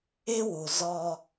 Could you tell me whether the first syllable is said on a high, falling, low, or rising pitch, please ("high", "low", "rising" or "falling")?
high